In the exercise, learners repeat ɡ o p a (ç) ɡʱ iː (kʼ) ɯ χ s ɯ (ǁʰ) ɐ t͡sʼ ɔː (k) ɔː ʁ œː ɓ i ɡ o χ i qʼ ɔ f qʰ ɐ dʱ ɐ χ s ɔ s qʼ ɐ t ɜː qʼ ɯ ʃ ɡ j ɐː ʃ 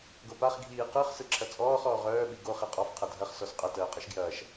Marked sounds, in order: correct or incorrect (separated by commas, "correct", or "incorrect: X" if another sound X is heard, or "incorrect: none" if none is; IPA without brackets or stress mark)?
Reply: incorrect: χ, incorrect: q, correct, incorrect: χ